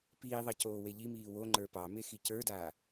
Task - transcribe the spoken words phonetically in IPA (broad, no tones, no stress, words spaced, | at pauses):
piːðˤɑ coːweʎimiː wo ŋ͡ǃə˞pɑme xicə˞daː